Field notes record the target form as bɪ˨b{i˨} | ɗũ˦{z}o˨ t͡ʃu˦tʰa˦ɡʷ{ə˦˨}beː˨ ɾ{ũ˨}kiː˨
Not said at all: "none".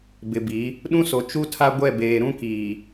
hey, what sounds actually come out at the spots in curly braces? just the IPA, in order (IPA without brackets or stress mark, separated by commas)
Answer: i˨˦, s, ɛ˦˨, ũ˦